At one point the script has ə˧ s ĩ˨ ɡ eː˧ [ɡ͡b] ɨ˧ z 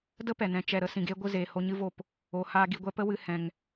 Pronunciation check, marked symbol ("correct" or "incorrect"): incorrect